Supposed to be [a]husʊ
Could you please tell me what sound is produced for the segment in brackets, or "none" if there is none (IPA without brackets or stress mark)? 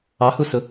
ɑ